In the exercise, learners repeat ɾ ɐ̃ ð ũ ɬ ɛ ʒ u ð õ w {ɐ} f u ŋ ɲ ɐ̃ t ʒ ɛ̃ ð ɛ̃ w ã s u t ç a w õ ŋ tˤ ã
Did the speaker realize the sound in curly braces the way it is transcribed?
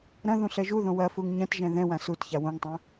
yes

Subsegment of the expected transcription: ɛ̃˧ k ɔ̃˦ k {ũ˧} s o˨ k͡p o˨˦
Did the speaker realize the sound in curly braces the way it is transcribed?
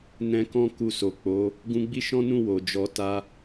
no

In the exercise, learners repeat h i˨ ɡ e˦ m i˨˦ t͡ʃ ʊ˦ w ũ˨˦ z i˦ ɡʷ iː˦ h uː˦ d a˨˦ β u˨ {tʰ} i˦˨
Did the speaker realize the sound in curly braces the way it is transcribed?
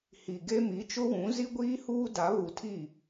yes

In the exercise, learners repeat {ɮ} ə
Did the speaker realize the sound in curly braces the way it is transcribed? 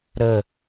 no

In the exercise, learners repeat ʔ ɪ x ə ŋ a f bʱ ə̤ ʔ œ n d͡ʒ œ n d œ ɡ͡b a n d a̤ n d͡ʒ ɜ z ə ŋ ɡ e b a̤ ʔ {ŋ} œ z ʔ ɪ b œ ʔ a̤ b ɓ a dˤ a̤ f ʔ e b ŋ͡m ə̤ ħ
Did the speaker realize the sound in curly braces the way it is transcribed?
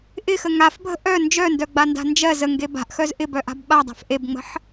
no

